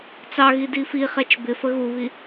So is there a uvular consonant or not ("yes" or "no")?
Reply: yes